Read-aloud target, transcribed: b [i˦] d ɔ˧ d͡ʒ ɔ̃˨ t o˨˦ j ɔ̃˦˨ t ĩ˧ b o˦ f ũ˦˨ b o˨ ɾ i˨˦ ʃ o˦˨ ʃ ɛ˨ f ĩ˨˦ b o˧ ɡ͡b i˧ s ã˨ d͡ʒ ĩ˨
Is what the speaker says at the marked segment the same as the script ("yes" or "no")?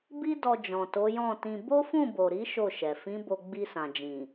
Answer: yes